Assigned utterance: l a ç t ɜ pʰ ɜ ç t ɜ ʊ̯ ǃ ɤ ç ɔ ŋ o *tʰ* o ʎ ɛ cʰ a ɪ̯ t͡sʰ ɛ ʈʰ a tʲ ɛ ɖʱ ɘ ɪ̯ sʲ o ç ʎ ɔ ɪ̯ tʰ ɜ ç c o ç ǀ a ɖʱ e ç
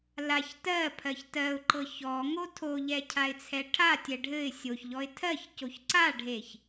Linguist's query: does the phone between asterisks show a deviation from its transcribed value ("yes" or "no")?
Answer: no